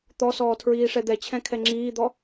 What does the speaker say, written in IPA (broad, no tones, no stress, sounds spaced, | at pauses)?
t̪ ɔ s ɔː tʰ ɹ iː ʂ ɛ d̪ ɛ t͡ɕʰ ɛ̃ kʰ ɛ ŋ͡ǁ iː d̪ ɔ